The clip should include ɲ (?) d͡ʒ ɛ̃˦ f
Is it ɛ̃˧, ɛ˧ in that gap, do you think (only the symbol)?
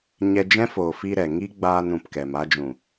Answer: ɛ˧